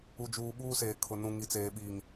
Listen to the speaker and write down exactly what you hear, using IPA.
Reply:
u˨d͡ʒuː˨ ɓuː˦seː˨kʰʊ˨ nũ˨ŋi˨t͡seː˨ ɓi˨ŋ

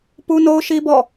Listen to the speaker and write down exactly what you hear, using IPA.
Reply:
pu˦no˦ʊ̯ʃi˦ bɔ̰˦˨

